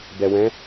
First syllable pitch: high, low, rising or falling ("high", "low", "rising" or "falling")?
low